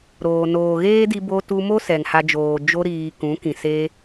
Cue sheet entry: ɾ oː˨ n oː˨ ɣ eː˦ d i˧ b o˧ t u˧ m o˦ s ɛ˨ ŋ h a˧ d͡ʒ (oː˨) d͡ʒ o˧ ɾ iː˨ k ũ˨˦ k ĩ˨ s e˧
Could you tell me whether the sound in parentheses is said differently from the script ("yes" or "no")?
no